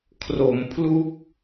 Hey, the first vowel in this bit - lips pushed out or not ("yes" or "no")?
yes